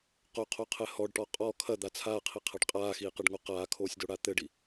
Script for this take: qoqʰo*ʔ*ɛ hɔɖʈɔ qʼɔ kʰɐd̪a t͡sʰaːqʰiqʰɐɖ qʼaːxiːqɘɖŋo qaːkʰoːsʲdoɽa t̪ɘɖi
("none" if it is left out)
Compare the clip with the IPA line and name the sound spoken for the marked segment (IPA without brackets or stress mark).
qʰ